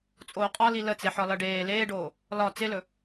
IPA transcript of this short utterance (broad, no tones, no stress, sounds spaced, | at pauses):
t͡sʼ oː qʼ ɒ l i l ə t͡s e ħ ɒ l ʌ ɖ eː l eː ɖ oː | l ɒ t͡s ɪ l ɵ